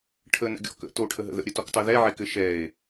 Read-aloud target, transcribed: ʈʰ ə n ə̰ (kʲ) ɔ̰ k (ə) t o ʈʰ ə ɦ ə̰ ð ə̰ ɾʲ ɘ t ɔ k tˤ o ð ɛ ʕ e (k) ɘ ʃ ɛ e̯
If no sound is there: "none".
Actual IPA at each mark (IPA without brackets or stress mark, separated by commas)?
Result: ɡʲ, ə̰, k